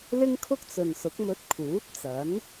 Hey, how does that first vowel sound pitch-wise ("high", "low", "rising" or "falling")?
high